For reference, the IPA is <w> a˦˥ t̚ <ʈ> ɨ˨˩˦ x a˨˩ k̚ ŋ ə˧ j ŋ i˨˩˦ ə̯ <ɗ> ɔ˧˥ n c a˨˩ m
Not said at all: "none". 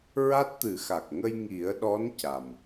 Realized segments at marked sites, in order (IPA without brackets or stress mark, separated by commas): ɹ, t̪, ɗ